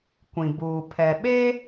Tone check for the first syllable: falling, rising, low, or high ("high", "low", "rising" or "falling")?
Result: low